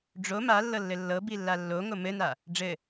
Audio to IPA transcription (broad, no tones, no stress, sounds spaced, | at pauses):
ɖ͡ʐ o m a lː ɤ lː ɘ lː ɤ b i lː a lː o ŋ o m ɘ n a | ɖ͡ʐ ɘ